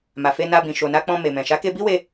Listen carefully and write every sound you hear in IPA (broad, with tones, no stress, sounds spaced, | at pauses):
m a˨ f e˧ n a˧ b ĩ˨ ʃ o˨ n a˧ k͡p ɔ̃˧ m e˨ m ɛ̃˨ ʃ a˨˦ k e˧ b i˦ w e˧